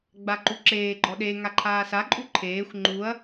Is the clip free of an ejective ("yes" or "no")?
no